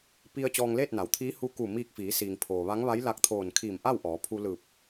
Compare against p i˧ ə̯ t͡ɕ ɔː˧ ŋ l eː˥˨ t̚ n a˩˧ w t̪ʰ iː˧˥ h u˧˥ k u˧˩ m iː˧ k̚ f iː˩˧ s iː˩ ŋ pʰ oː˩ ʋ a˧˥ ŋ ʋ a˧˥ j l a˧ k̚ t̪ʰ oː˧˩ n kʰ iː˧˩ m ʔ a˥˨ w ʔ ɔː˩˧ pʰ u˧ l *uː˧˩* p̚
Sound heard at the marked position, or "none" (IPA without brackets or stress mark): ɯː˧˩